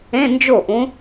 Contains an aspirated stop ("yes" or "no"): no